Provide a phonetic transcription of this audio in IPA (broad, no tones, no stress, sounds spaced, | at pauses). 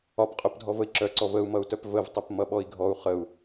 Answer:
ɒ p qʼ œ p dʱ ɔ v ə i̯ ǁ œ ǀ ɔ v ə u̯ m ʌ u̯ t œ p v ə v tˤ ə p m ʌ ɓ ɔ i̯ ɡʱ ɔ u̯ χ ə u̯